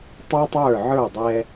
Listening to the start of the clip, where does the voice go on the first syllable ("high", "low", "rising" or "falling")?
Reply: high